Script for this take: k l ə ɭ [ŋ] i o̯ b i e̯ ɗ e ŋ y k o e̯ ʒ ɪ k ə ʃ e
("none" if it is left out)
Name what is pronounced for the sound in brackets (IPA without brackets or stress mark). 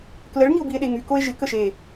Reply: ŋ